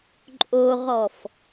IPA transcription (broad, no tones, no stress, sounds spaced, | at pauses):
ǃʼ o ʁ ɔ f